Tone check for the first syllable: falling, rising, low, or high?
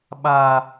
high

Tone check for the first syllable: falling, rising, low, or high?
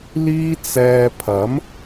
high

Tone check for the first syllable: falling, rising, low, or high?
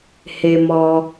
low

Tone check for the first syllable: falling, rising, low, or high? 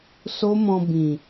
high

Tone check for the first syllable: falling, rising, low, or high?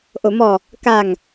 low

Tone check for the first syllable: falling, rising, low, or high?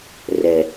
low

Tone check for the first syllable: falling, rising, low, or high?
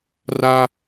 high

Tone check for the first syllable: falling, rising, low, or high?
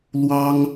high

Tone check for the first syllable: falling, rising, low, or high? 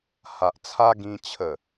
low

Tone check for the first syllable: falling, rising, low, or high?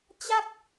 falling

